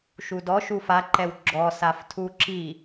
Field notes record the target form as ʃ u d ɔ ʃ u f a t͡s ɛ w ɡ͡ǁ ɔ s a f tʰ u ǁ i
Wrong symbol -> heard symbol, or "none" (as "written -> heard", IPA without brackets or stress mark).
t͡s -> ǃ